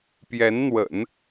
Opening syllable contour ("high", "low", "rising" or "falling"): rising